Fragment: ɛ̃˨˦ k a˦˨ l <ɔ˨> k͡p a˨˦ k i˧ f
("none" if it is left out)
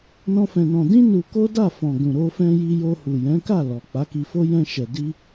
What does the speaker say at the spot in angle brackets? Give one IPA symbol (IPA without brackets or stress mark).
ɔ˨